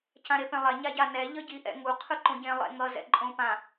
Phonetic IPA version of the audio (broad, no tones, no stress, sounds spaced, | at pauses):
c ã ɾ e p ẽ lˠ ɛ ɲ a ɟ a n ɛ ʎ ʌ ɟ i ʔ ɛ̰ ŋ u qʰ ɯ ǃ õ ɟ ẽ lˠ ḛ ŋ ʌ z ɛ̰ ǃʼ õ p ã